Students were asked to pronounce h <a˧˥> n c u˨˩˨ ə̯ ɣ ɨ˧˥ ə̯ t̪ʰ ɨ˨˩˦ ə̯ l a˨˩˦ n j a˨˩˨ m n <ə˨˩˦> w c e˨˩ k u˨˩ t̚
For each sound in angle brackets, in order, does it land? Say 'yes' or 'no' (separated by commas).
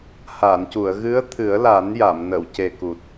no, no